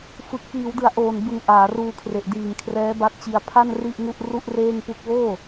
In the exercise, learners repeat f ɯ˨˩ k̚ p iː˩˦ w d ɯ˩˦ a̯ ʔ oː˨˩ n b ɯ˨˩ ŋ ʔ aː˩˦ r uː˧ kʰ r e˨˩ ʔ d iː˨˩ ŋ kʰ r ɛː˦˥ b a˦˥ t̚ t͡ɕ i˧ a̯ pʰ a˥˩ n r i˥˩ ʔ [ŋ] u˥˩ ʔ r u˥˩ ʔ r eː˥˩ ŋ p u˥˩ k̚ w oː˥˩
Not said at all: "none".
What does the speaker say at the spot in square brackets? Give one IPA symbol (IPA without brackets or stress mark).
ŋ